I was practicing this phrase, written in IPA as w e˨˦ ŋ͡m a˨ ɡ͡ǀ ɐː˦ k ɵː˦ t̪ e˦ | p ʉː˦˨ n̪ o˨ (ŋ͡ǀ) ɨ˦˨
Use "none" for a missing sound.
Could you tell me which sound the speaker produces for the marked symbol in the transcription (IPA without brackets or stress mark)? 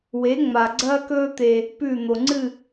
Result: ŋ͡ǀ